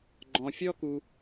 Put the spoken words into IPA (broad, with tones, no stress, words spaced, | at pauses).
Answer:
ɡ͡ǃɔ̃˧fʲɔ˥ ku˥